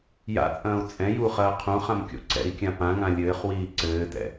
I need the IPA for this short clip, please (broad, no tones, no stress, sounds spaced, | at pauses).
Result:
j a̰ t͡sʼ ɐ̃ː u̯ t͡sʼ ɛ̃ j u χ ɐː qʰ ũ χ ã m kʲ o̰ ǀ ɛ̰ i̯ kʲ ã p ã ŋ ã lʲ ɘː χ w iː ǀ ɘː t ɛ̰